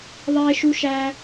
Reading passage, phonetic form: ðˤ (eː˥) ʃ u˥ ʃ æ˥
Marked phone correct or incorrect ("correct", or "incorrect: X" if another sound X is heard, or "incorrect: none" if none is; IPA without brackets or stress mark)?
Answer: correct